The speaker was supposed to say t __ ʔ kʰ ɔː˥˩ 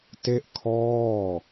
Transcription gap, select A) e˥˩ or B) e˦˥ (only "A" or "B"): A